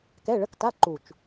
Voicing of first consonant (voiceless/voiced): voiceless